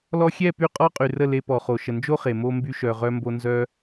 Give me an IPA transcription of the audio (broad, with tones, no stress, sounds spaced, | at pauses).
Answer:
l ɔ˧ xʲ ɛ˦˨ p y˧ qʼ ɔ˦ qʼ y˨ r ə˦˨ l e˧ p ɔ˨ χ o˨ ʃ ə˨ n d͡ʒ o˦ χ e˨ m o˧ m b y˧ ʃ œ˨ ʁ œ˧ m b o˧ n z œ˦